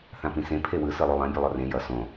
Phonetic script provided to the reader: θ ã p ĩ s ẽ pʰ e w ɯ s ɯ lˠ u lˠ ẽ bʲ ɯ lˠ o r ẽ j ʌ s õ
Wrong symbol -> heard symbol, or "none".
none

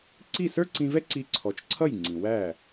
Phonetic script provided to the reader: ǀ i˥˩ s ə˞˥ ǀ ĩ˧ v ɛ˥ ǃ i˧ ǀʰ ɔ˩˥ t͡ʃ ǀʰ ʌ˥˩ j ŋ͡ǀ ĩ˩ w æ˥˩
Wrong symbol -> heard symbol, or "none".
ǃ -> ǀ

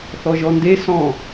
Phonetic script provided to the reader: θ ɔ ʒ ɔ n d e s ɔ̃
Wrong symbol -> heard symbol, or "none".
none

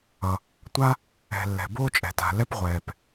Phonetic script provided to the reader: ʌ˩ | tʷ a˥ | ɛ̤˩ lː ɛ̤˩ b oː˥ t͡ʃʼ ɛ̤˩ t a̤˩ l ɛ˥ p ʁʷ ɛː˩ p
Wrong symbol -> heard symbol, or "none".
none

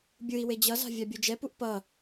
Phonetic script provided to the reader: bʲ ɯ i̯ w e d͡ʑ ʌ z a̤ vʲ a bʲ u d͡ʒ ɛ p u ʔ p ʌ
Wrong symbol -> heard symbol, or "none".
none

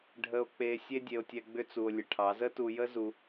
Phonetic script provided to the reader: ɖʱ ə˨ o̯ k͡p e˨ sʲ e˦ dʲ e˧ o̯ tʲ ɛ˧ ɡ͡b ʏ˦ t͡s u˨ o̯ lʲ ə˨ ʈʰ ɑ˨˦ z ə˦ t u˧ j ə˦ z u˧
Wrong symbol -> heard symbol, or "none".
none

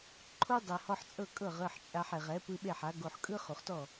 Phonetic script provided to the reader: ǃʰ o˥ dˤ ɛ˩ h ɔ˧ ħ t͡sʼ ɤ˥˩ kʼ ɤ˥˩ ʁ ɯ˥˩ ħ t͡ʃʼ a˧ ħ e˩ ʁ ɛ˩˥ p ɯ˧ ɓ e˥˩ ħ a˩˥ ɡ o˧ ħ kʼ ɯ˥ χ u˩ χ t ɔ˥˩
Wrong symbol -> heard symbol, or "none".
none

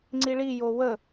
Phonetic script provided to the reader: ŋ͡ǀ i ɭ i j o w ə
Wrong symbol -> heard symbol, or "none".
none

